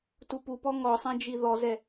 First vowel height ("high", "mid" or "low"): high